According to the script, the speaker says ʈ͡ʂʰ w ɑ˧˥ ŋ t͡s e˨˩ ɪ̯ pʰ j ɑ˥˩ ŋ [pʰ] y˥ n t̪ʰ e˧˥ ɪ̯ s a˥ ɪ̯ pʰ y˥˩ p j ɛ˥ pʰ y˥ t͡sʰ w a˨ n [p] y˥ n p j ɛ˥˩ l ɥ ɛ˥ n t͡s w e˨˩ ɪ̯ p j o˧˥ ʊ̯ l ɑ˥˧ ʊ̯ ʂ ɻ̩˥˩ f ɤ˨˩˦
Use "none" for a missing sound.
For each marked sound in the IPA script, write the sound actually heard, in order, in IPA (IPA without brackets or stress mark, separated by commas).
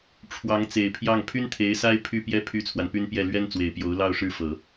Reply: pʰ, p